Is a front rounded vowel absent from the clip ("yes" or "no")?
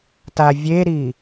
yes